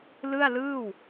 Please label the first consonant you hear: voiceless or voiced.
voiced